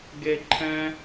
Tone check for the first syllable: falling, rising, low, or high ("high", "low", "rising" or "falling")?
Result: high